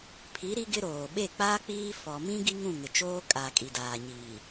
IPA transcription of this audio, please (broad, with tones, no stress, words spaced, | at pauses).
pʰi˨˦ ɾi˦ɡɪ˦ɾoː˨ ɓe˦˨k͡paː˦ k͡piː˦ fɔ˨mĩ˦ ɡi˦ŋũ˦˨ ŋɪ˨t͡ʃoː˦ kʼaː˨kʼi˨daː˨ɲiː˨